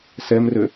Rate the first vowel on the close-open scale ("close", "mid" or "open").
mid